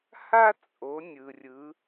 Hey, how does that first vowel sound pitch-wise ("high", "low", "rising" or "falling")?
high